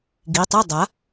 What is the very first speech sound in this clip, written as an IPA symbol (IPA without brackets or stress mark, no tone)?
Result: ɡ